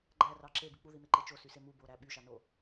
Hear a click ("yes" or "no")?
yes